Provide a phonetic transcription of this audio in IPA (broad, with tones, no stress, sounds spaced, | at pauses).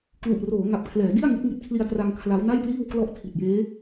k l u˨˩ ʔ r oː˩˦ ŋ a˨˩ p̚ kʰ l ɛː˩˦ d i˥˩ a̯ ŋ i˦˥ t̚ ŋ i˥˩ t̚ kʰ l i˧ a̯ t r a˧ ŋ kʰ l a˦˥ w n a˥˩ j p l iː˥˩ w k l ɔ˦˥ ʔ tʰ i˨˩ t̚ j eː˦˥